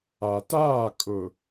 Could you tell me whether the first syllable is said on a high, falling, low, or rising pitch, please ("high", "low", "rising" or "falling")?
low